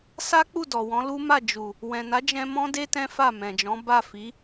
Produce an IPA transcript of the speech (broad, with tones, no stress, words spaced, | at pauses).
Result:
sa˦k͡pu˦˨ dɔ˨wɔ̃˨˦lu˦ma˦˨ d͡ʒu˨ | wɛ̃˨na˨˦d͡ʒɛ̃˧ mɔ̃˦de˦ tɛ̃˦fa˦˨mɛ̃˨d͡ʒɔ̃˨˦ ba˦˨fi˨˦